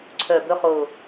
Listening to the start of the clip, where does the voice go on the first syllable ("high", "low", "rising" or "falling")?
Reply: low